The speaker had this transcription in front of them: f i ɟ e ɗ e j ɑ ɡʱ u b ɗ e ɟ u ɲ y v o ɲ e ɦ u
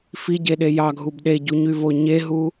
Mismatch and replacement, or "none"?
none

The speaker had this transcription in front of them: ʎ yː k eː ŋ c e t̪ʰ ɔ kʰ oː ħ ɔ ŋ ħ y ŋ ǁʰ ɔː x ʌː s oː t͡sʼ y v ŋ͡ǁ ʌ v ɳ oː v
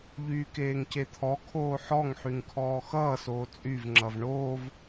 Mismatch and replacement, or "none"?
ǁʰ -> kʰ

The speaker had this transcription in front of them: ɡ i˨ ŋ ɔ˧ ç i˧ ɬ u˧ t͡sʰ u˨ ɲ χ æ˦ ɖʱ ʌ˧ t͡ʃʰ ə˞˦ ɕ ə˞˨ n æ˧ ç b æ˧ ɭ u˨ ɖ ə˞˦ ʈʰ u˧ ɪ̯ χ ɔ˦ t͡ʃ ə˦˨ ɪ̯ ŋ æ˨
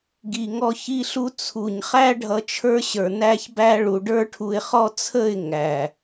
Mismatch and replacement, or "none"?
t͡ʃ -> t͡sʰ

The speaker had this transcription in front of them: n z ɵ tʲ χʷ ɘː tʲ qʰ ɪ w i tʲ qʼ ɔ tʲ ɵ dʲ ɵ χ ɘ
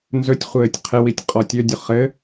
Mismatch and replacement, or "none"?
none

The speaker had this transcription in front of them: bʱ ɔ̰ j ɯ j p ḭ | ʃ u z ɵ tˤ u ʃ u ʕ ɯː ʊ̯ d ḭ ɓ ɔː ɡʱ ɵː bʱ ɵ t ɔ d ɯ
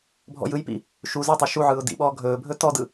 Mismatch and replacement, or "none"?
none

